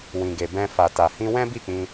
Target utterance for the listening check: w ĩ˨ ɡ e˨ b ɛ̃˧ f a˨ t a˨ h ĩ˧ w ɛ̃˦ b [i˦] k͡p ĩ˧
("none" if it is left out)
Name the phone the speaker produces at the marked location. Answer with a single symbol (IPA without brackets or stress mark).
i˦˨